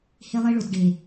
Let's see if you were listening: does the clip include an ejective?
no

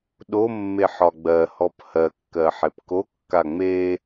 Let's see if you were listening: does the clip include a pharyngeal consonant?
yes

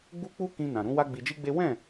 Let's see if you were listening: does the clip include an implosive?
no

